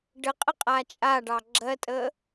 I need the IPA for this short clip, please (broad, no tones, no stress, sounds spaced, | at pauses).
ɖ ə qʼ ə qʼ a t͡ʃʼ a ɖ ɑ ɡ͡ǁ ɜ tʼ ə